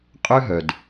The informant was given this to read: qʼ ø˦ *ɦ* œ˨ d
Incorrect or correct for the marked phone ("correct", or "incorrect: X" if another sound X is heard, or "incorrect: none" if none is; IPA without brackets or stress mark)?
correct